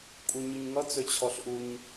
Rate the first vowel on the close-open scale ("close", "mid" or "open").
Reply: close